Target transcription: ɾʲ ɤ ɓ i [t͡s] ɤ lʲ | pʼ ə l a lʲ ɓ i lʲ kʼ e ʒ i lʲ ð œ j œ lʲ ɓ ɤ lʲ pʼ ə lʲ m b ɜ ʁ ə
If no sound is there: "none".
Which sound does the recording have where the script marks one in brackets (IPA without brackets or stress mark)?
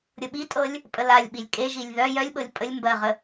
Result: tʼ